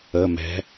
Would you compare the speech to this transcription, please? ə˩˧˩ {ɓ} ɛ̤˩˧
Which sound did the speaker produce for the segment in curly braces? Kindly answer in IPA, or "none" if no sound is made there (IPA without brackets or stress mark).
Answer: m